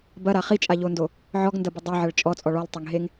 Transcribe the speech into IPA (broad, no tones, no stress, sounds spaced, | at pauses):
b ɐ ɾ a χ i t͡ʃʼ a ʎ o n d o | ʕ ɔ ɡ n d ɐ b ɪ dˤ œ ʕ ɐ ɭ t͡ʃʼ ɔ t͡sʼ ɔ ɭ ɔ l tˤ ɐ ŋ ɦ e ŋ